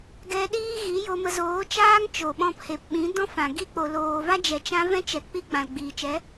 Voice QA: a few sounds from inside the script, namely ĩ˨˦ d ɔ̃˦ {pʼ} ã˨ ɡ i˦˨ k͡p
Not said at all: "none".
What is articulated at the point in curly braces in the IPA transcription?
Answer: f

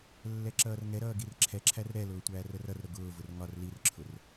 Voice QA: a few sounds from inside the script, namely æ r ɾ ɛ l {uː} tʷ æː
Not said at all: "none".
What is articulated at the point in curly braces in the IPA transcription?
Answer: ʊː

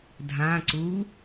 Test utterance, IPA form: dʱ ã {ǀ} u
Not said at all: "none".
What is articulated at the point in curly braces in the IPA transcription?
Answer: ǀ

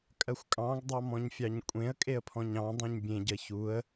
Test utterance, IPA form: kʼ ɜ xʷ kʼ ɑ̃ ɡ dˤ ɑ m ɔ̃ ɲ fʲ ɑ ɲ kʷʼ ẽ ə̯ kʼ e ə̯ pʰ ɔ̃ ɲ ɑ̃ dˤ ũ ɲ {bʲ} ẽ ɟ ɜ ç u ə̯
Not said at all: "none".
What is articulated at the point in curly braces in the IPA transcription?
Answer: bʲ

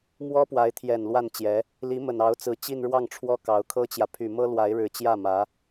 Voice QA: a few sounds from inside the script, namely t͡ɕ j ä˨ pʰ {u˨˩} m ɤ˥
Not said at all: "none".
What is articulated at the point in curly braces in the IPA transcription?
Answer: y˨˩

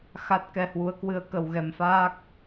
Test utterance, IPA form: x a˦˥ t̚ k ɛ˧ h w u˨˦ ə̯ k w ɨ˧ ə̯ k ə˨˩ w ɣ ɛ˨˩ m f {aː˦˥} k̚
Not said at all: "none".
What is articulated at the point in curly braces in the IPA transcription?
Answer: aː˦˥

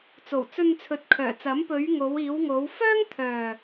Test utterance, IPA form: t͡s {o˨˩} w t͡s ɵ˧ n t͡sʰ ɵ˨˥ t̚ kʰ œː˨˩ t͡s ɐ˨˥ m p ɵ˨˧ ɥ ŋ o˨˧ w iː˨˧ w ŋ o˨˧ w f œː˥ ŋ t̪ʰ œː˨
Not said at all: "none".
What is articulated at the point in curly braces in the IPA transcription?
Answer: o˨˩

